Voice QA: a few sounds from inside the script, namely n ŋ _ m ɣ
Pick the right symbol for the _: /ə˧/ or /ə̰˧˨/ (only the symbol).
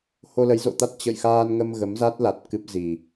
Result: ə˧